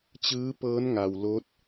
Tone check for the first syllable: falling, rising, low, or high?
rising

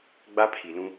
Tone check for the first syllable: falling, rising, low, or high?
high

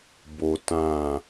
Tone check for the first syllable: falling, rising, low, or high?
high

